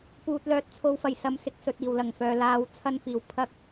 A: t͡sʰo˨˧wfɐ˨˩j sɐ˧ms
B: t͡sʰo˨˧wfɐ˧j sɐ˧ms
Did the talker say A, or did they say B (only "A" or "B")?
A